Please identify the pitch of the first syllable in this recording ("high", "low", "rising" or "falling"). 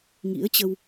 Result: rising